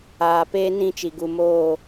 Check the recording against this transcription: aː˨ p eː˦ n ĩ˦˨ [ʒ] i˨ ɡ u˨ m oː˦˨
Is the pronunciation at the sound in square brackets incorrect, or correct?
incorrect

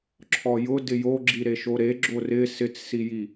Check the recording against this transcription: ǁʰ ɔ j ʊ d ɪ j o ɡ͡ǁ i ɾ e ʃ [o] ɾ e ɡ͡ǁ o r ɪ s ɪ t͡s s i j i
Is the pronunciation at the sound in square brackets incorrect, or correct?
correct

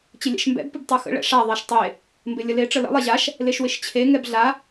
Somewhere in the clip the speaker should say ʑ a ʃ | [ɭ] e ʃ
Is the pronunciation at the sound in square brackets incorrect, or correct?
incorrect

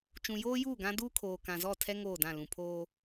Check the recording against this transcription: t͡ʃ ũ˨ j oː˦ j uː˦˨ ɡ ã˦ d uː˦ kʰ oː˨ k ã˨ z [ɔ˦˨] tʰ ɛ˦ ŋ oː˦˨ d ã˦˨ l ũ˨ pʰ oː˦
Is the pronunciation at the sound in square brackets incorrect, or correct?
correct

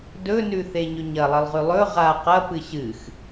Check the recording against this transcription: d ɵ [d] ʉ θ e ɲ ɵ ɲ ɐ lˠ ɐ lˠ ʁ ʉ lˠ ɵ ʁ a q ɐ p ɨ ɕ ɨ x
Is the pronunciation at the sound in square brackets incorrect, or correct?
incorrect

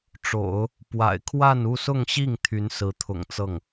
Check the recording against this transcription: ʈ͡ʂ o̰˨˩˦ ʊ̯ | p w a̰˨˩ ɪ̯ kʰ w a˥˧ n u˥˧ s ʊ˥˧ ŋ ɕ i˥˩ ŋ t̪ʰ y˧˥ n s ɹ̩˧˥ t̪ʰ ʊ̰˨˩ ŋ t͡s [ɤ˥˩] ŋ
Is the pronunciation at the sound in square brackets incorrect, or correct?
correct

